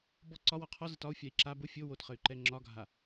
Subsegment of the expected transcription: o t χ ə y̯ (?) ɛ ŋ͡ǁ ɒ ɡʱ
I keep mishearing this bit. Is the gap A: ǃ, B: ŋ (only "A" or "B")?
A